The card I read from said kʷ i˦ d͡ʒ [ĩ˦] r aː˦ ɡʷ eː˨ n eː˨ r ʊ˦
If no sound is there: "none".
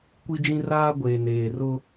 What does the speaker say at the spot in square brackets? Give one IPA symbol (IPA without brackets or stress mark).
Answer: ĩ˦